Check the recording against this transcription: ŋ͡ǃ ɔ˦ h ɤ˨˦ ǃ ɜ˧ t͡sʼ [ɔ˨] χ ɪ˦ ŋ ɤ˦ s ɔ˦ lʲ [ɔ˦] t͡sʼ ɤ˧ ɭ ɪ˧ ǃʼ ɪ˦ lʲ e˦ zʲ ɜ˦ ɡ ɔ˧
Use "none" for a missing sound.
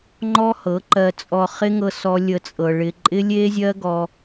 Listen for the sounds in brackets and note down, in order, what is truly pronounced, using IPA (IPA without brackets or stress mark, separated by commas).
ɔ˧, ə˦